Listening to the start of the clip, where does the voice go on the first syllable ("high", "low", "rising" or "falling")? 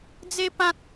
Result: high